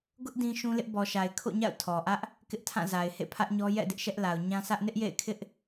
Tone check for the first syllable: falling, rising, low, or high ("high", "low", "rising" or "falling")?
high